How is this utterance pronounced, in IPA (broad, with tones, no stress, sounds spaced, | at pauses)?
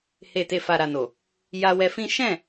h e˨ t e˨ f a˨ ɾ a˨ n o˨ | j a˧ w ɛ˧ f ĩ˦ ʃ ɛ̃˦˨